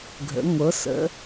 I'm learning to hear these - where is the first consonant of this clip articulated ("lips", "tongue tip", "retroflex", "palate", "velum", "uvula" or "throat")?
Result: velum